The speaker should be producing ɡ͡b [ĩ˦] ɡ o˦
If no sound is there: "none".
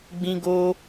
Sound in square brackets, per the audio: ĩ˦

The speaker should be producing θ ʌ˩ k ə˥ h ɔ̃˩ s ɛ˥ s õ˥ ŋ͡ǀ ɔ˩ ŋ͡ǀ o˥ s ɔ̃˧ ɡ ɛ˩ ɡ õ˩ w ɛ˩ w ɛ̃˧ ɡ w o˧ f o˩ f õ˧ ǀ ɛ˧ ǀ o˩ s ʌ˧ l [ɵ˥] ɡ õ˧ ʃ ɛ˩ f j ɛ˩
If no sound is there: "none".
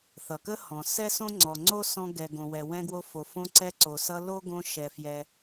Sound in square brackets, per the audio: o˥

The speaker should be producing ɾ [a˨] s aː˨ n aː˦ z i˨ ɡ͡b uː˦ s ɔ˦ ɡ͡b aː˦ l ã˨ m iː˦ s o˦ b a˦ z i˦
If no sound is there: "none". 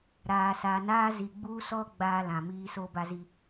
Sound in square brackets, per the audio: aː˨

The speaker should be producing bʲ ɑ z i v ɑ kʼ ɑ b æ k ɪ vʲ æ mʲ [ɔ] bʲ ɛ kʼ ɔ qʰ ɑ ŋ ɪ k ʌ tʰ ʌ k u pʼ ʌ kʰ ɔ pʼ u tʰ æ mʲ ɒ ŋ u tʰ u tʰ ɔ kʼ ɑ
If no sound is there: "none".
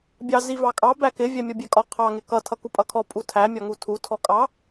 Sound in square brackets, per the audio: ɔ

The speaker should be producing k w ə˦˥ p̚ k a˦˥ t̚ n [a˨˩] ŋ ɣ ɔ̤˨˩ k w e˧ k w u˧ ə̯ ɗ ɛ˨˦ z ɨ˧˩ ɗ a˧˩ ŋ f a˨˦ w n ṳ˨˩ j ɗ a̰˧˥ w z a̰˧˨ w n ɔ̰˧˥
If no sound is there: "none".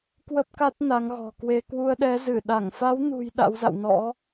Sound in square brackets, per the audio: a˨˦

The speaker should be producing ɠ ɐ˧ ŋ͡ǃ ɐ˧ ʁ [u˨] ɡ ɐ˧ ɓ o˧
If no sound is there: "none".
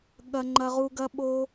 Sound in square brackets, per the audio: u˧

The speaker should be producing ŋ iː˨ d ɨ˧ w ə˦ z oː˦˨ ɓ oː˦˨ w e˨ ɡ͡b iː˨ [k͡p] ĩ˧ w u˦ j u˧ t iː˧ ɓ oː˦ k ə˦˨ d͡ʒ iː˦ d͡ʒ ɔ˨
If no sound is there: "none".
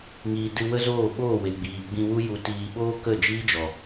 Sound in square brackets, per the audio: ɡ͡b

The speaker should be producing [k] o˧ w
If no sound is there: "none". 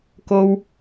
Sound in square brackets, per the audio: k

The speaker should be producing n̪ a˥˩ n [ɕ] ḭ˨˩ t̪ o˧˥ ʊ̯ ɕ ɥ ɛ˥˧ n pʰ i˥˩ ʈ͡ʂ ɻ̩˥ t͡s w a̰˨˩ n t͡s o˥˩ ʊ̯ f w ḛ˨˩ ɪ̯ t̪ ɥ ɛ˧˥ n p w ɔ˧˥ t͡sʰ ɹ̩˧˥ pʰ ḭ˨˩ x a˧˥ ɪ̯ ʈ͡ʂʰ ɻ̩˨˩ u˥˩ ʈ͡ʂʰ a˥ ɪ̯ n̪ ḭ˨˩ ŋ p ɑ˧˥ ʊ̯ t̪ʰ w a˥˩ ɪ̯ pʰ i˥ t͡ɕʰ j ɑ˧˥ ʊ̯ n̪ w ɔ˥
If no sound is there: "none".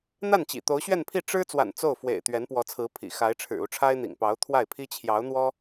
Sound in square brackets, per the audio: t͡ɕ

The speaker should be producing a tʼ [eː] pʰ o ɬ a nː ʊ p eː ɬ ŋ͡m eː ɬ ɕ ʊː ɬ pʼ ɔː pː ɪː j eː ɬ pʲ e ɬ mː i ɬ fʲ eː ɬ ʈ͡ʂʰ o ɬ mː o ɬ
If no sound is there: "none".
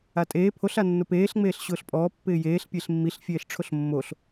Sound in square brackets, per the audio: eː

